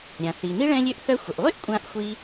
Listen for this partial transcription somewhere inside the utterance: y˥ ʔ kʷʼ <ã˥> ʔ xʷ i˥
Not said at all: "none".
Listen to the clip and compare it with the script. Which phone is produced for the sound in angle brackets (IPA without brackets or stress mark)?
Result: ã˥